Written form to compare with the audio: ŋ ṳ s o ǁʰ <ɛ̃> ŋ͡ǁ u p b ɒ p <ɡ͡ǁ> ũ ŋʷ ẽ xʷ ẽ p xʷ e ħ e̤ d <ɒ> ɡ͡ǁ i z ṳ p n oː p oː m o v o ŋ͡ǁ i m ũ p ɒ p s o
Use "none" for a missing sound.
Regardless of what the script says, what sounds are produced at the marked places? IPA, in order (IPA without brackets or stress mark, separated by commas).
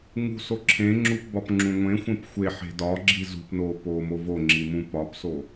ẽ, ŋ͡ǁ, ɒ